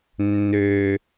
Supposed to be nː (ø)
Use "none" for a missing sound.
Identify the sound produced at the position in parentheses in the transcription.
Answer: ø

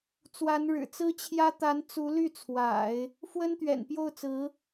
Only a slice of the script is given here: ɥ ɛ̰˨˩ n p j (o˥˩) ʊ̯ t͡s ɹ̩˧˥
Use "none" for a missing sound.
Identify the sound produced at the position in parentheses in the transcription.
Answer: o˥˩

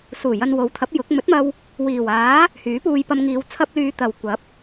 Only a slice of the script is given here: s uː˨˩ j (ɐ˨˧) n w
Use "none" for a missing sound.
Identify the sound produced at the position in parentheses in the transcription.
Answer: ɐ˧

